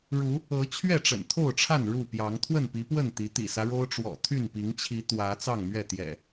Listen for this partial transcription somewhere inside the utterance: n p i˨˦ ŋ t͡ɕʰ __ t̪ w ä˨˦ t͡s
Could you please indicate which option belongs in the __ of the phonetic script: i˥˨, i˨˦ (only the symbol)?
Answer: i˨˦